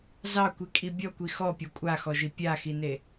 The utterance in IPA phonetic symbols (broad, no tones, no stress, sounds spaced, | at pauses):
z ɑ kʷ i kʼ i bʲ ɔ kʷ i x ɔ pʲ ɔ kʷʼ a x ɔ ʒ i pʲ a x i n e